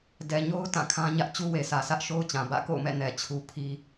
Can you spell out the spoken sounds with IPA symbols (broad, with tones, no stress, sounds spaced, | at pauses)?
d ɛ˨ ɲ o˦ ʊ̯ t ã˦˨ kʰ ã˦ ɲ ä˦ ʔ t͡ɕ u˦ w e˨ sʰ ä˨ s ä˦ ʔ ʃ o˦ ʊ̯ t͡ɕ ã˨ b ä̰˦˨ k o̰˦˨ ʊ̯ m ɛ̰˦˨ n ɛ˨ t͡ɕʰ u˦ pʰ i˦